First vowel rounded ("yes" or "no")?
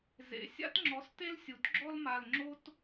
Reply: no